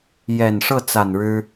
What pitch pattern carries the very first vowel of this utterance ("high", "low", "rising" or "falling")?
low